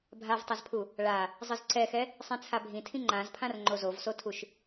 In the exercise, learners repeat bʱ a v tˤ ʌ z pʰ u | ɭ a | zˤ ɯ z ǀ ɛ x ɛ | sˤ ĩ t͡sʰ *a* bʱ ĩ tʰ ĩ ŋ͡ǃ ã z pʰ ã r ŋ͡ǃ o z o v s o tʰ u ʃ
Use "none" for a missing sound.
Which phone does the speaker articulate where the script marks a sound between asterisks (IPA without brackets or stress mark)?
a